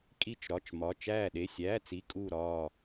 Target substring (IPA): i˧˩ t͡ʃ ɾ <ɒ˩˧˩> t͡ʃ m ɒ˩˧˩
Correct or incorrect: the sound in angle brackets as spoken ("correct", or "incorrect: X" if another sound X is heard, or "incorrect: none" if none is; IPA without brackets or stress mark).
correct